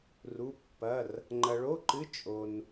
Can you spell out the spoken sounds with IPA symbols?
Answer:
r u˧˥˧ pː ɐ˧˥˧ r | ŋ͡ǃ ɐ˧ ɭ o˧˥˧ ǃ ɨ˧˥˧ t͡ʃʼ o˧ n

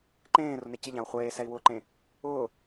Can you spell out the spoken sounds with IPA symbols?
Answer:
ǃ ẽː r ʊ n e c ɪ ʎ ã u̯ χʷ eː s ɛ i̯ w ʊː ǃ ẽ | ʊː

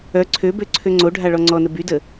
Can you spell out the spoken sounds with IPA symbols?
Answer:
œ ǀʰ ø b ø ǀʰ ø ŋ͡ǀ o ɖʱ a ɭ ɔ ŋ͡ǀ ɔ n ə b y d ə

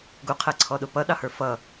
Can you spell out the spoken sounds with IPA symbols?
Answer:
ɡ u qʰ ɛ ǀʰ ɔ ɗ ʊ p ʌ ɗ ɑ h ə˞ f ʌ

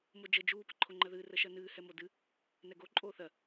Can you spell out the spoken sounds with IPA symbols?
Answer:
m o d͡ʒ ə d͡ʒ uː p ə ǃʰ o ŋ͡ǃ ɜ ð ɨː r ə ʃ ɜ n ɨː h ɛ m o d ɨ | n ɛ ɡ o ǃʼ oː θ ɜ

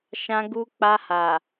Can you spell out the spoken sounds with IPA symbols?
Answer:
ʃ ã˧ ɡ u˧ k͡p a˧ h a˨

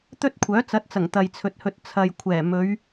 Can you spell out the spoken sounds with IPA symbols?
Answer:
t̪ ɵ˥ t̚ kʷʰ œː˨˥ t͡s ɐ˨˥ t̚ t͡s ɐ˨˩ ŋ t̪ ɐ˨ j t͡sʰ ɵ˨ t̚ h ɵ˧ t̚ t͡sʰ ɐ˨ j kʷʰ ɛː˨˩ m ɵ˨˧ ɥ

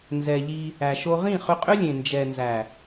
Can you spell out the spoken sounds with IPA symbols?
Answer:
n z ɛ˨ ʎ i˧ | æ˨ ʃ o˧ ʁ ĩ˦˨ χ ʏ˧ qʼ ʏ˦ lʲ ẽ˨ n d͡ʒ ɛ˨ n z æ˨

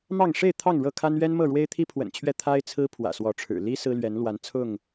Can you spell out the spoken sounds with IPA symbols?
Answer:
m ɑ˥˨ ŋ ʂ e˥˨ ɪ̯ t̪ʰ ɑ˥˨ ŋ ɻ ɤ˥˨ kʰ a˦ n ɥ ɛ˦ n m ɤ˥˨ ɻ w e˦ ɪ̯ t̪ʰ i˦ pʰ w ə̰˨˩ n t͡ɕʰ ɥ ɛ˥˨ t̪ʰ a˦ ɪ̯ t͡sʰ ɹ̩˦ pʰ w ä̰˨˩ s w ɔ˨˦ ʈ͡ʂʰ ɻ̩˨˩ l i˦ s ɹ̩˦ l ɥ ɛ˨˦ n l w a˨˦ n t͡sʰ ʊ˥˨ ŋ

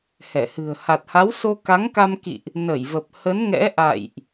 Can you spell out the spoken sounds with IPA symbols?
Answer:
h ɛ˧˩ h ɨ̤˨˩ ə̯ h a˨˩ t̚ h a˨˦ w s o˧ k a˨˦ ŋ k a˧ m k ḭ˧˨ ʔ | n ə˧˩ j v ə˨˩ p̚ h ə˨˦ n ŋ ɛ̰˧˥ ʔ a̰˧˨ j ʔ

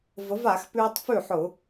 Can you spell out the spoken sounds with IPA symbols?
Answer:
v ə˨˥ v a˧˩˧ x p ʉː˧ tˤ f ʉ˥˩ ħ ʊ˧˩˧

